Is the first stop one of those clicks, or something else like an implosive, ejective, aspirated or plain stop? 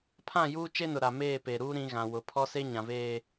aspirated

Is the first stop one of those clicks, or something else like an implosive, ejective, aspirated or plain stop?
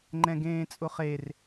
click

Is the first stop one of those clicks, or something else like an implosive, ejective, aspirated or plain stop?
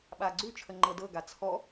implosive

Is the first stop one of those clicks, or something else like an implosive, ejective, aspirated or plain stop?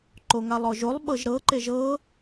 click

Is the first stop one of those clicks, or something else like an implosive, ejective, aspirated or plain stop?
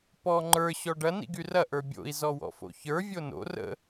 plain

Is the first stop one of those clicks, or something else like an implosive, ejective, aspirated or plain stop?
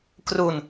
plain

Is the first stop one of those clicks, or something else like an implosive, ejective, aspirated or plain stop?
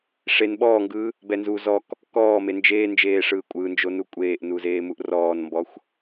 implosive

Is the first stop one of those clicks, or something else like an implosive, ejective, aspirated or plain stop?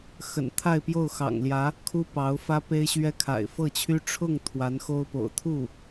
aspirated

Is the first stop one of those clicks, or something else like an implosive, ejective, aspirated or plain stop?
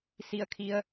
aspirated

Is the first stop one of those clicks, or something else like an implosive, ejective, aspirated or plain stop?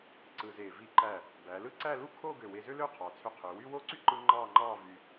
click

